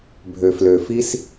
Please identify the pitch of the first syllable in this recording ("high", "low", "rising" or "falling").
low